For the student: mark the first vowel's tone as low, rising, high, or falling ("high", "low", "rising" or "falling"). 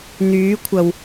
rising